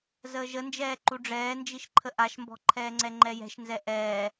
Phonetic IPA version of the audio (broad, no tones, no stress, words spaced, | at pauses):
zəːʒənd͡ʒɛː ǃuɖ͡ʐɛːnd͡ʒiʃǃʰə ʔaʃmbɔ̤ǃʰɛːŋ͡ǀɛ ŋ͡ǃɛjɛ̤ʃnzɛ ʔɛː